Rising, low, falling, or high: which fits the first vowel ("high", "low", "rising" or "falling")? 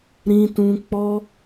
high